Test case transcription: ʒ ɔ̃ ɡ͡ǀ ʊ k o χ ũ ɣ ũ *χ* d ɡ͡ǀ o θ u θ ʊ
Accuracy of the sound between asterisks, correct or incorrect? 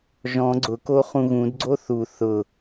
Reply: incorrect